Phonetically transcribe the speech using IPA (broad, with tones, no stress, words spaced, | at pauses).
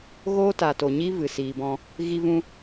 ɣoː˦ta˨to˨ɲi˦ vɨ˨siː˨bɔ̃˧ | ɣi˦vũ˦